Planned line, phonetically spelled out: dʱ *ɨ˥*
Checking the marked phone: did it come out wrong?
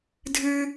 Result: no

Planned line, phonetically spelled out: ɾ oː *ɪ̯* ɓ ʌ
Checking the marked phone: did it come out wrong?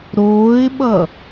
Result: no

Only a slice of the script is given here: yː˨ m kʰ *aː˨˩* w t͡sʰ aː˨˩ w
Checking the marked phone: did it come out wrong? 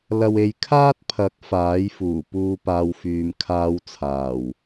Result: yes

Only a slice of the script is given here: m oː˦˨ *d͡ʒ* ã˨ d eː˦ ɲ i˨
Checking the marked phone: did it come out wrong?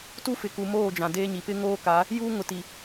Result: no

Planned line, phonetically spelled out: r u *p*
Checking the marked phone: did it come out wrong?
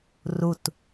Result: yes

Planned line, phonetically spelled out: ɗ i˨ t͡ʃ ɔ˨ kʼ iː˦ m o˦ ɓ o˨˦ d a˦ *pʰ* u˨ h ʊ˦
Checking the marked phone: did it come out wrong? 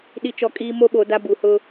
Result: yes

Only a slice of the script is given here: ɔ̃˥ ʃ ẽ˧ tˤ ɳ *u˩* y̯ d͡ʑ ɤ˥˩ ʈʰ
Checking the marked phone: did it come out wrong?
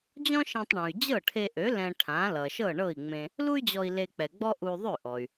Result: yes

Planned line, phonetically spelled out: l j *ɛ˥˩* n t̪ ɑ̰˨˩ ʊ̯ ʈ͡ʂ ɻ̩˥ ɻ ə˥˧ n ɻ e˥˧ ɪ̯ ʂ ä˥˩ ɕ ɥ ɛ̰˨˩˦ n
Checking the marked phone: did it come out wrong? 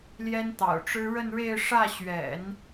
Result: yes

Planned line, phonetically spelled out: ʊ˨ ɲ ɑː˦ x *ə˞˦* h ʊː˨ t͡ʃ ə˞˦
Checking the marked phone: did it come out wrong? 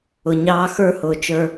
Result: no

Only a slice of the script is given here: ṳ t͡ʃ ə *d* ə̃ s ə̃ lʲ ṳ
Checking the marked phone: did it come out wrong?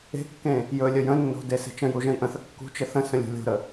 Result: yes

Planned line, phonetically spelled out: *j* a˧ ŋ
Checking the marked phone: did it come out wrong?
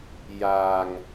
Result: no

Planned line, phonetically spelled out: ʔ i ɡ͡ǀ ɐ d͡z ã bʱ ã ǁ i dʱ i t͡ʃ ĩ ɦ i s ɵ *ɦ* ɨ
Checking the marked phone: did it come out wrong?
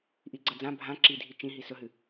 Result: no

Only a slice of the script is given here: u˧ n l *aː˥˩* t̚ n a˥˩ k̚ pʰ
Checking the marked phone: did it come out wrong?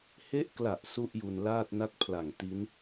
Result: no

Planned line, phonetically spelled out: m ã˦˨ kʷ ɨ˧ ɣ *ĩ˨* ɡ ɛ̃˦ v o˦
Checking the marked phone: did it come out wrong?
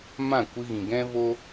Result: no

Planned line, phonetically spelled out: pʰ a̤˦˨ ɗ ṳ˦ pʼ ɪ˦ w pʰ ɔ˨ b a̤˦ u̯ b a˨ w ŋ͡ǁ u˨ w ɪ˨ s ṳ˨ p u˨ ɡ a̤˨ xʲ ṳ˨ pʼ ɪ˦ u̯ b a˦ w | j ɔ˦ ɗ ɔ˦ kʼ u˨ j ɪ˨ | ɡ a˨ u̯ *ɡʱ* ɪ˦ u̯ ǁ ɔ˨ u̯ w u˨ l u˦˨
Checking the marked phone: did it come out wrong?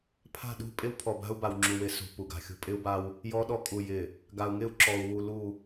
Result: yes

